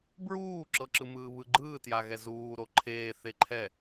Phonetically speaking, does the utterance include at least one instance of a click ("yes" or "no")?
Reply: yes